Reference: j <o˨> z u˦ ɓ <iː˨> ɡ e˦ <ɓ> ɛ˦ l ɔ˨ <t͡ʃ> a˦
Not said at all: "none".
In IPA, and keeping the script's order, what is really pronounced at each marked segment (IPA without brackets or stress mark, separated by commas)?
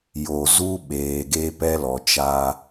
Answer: o˨, eː˨, p, t͡ʃ